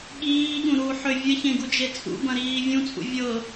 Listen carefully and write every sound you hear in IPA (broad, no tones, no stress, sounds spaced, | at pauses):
ɠ iː ɠ ũ ɾ u ħ ø vʲ ɐ ç ẽ ɡ u d͡ʒ e t͡sʼ ṵ b ɐ̃ ɾ iː vʲ ũ t͡sʼ ṵ vʲ ɤ